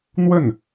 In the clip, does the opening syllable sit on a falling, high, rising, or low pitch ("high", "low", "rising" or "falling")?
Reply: falling